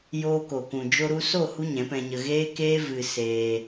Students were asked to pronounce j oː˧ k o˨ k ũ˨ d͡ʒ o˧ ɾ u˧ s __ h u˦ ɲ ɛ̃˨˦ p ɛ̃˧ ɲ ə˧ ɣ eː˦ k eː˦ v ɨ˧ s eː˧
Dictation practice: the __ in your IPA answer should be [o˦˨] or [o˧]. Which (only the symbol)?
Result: o˦˨